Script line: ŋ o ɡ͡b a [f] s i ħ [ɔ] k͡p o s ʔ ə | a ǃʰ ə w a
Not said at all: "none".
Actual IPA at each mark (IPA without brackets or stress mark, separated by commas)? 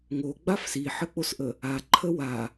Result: f, ə